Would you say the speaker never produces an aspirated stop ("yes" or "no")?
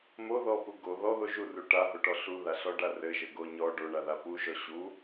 yes